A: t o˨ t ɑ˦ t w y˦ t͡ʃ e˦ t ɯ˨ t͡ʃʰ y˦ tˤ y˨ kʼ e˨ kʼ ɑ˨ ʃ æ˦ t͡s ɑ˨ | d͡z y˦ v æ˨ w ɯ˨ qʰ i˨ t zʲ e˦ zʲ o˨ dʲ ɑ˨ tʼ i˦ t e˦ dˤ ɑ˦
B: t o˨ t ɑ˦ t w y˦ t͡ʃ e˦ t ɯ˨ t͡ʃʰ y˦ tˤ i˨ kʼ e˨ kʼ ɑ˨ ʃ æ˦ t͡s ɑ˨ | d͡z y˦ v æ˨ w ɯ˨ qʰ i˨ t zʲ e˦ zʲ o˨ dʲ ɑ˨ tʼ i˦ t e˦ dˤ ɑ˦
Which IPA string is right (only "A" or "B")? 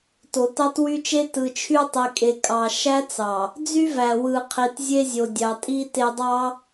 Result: B